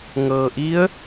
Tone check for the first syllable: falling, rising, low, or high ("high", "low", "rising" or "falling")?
low